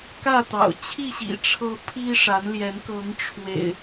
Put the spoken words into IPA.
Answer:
kä˥˨t̪ɑ̰˨˩ʊ̯t͡ɕʰi˥˨ɕḭ˨˩ ʈ͡ʂʰɤ˦ pʰi˦ʂa˨˦nljɛ˨˦n kɤ˨˦ŋ ʈ͡ʂʰwḛ˨˩ɪ̯

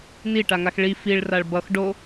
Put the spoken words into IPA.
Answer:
niʈaŋax ɭi fiɭraɭ bʌx ɖo

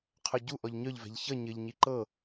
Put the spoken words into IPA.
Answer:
qʰœɟu ʔɔʎɲœʎvɛ̤ʎ çʌ ɲɘʎ ɲiǃɤ

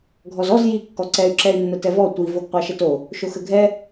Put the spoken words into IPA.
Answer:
ɡʱɔzɔz ji kːɔǀɛy̯ ǁɛy̯nːətɛvɔ tʷi voɡqʷɑʃəto | ʃoxəɡʱɛ

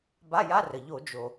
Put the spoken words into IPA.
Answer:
ba˧˥˧ja˧˥˧rə˩ ʎo˧˩˧d͡ʒo˩

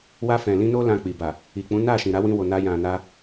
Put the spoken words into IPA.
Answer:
wa˧ fɛ̃˨lĩ˧ no˦lã˧k͡pi˨ ba˨ | i˨k͡pũ˨˦ na˦˨ʃĩ˨ɾa˨˦ wĩ˧wo˨na˧jã˨ na˧

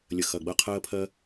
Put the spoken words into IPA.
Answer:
lʲə˩xɐ˩ ɡ͡bɐ˧qʰɜː˧pʰɜ˧

